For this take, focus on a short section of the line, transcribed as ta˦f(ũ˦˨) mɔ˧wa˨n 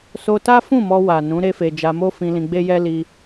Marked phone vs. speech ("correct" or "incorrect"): correct